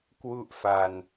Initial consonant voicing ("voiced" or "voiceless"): voiceless